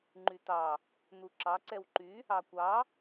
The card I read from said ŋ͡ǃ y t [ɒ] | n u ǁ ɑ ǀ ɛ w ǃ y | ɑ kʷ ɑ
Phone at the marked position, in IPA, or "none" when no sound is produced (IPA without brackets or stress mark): ɑ